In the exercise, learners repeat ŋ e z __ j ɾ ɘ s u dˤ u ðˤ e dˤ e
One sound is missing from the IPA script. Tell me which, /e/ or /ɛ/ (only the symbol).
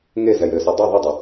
ɛ